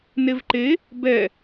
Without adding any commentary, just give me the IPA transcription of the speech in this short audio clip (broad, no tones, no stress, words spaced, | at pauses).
nevǃe | bɛ